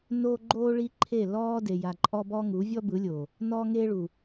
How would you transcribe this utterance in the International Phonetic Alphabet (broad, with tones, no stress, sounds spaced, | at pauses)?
n oː˦ ɡ͡ǃ oː˦ ɭ i˦ ǃʰ e˦˨ l ɔː˦ d e˨ j a˨ ǃʼ ɔ˦ b ɔ˦ ŋ u˨˦ vʲ ɔ˦ b ɯ˨˦ lʲ o˨ | n ɔː˦ ŋ eː˦ ɭ u˨